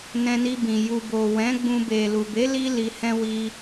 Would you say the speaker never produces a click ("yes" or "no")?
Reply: yes